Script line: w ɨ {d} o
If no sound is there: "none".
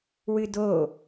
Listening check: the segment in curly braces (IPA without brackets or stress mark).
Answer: d